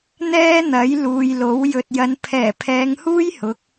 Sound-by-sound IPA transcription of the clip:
n̪ ɛː˥ n̪ ɐ˨˥ j l uː˨ j l o˨˥ w j ɵ˨ t̚ j ɐ˨˧ n pʰ ɛː˨˩ pʰ ɛː˨˧ ŋ h uː˥ j h ʊ˨˥ k̚

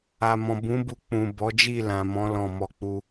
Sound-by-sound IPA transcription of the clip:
a˨ m ɔ̃˨ b ũ˨˦ b u˧ k͡p ũ˨ b ɔ˨˦ d͡ʒ i˦˨ l ã˨ m ɔ̃˨˦ l ɔ̃˦˨ m ɔ˧ k͡p u˧

